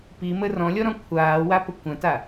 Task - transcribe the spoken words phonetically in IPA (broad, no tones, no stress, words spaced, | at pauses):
pimə rɔ̃lʲɔɾɔ̃ kʷʰaːwapə kʷɐ̃ta